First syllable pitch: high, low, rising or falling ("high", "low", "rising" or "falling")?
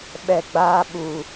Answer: low